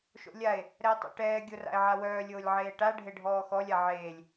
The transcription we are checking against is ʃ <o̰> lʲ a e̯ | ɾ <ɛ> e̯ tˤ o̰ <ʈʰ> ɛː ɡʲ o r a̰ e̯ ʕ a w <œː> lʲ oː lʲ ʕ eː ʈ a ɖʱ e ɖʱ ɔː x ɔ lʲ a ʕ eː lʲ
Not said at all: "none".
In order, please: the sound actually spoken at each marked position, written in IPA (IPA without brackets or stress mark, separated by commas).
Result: o̰, ɛ, ʈ, œː